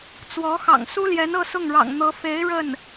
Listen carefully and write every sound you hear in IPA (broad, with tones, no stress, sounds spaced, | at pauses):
t͡s w ɔ˧˥ x ɑ̰˨˩ ŋ s u˥ l j ɛ˧˥ n ɤ˥˧ s ʊ˥˩ ŋ ɻ ɑ̰˨˩ ŋ n̪ ɤ˧˥ f e˧˥ ɪ̯ ɻ ə˥˩ n